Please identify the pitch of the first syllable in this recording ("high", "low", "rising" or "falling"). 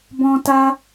high